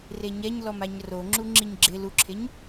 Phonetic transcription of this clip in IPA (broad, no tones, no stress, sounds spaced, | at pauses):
r e ɲ ɛ ɲ l ɔ m a ɲ r o ŋ͡ǁ u ŋ͡ǁ i ɲ ɡ͡ǁ ɪ l u ǁʰ e ɲ